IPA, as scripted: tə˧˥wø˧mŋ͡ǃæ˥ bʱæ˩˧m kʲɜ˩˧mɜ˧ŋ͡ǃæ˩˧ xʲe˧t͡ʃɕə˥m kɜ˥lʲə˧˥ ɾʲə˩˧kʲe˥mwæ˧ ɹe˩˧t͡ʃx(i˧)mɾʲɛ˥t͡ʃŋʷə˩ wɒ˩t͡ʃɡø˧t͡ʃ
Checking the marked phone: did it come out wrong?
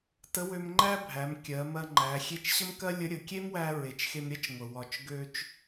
yes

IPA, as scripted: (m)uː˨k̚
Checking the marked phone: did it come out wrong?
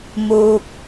no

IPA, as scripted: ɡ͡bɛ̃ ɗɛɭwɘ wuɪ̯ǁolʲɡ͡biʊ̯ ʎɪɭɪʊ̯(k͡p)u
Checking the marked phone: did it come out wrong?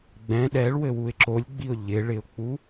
no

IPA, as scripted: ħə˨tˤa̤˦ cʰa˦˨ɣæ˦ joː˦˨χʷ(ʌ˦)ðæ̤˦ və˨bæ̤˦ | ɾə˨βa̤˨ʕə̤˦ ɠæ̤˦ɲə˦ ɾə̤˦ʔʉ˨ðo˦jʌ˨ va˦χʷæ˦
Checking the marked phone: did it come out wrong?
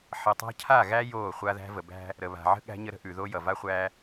yes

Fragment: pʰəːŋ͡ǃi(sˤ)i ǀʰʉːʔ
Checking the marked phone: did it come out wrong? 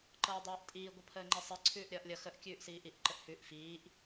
no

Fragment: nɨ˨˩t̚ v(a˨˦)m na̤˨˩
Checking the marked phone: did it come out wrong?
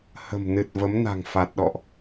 yes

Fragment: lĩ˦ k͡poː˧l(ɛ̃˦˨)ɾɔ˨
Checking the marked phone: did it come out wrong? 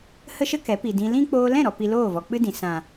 no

